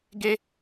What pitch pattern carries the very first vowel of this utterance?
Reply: high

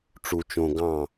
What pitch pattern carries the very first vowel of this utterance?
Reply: low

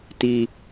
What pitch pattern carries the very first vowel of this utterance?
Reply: high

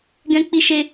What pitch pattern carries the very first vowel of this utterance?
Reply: high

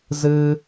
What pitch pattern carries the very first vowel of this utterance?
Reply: high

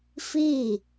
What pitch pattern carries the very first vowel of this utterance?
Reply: falling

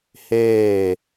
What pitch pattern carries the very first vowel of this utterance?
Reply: falling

